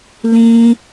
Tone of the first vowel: high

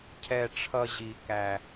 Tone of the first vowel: low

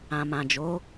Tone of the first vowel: low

